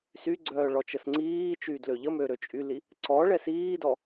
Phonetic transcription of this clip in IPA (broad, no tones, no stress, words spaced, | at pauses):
syɡ͡ǀœː ɭɔt͡ʃəsŋ͡ǀiːt͡ʃyːd løʎəmø ɾøt͡ʃʼyli | ǀɔ ɭɛsiːdɔ